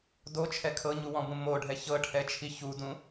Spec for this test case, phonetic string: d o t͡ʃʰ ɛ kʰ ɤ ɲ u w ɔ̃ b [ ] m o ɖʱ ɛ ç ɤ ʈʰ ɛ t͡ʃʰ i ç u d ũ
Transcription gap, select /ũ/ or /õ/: ũ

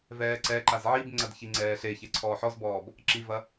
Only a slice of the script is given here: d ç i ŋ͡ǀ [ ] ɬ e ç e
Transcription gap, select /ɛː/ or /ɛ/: ɛː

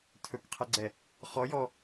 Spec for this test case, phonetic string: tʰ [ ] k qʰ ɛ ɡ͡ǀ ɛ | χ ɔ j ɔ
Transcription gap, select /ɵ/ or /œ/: ɵ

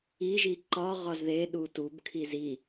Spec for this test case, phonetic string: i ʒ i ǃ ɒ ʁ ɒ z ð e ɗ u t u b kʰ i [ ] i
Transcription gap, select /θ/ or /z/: z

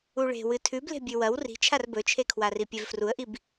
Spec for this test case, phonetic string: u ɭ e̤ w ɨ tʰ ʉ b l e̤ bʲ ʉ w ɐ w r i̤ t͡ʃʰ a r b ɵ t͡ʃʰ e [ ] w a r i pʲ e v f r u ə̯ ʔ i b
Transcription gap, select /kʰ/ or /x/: kʰ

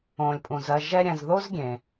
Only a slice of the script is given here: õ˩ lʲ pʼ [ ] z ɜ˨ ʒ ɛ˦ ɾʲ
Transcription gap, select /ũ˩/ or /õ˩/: ũ˩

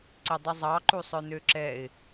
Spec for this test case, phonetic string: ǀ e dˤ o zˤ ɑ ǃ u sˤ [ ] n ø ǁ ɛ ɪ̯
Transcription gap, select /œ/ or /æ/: œ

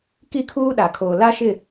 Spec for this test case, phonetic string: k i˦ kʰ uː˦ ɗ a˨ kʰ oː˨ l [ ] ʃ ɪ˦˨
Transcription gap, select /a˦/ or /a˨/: a˦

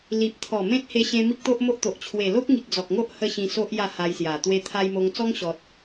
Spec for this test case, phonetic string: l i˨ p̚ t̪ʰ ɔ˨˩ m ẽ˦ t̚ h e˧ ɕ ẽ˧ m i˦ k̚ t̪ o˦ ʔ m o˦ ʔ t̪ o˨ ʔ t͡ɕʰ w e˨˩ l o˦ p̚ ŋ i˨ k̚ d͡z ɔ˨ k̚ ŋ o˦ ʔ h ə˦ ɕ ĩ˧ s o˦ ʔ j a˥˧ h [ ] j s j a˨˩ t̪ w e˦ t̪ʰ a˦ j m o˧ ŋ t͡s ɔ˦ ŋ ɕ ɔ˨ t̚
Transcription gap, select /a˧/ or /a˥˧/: a˧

